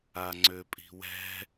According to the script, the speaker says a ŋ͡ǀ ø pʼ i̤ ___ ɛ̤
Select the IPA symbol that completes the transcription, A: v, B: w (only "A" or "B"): B